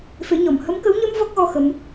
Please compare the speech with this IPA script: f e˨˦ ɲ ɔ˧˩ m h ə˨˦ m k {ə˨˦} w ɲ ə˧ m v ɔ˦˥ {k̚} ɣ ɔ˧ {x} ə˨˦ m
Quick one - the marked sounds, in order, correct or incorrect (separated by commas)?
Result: correct, correct, correct